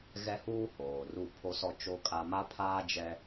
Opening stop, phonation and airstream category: aspirated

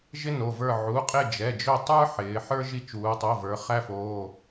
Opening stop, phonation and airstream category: ejective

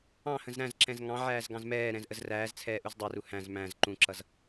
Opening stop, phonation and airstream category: click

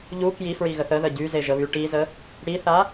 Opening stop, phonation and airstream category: plain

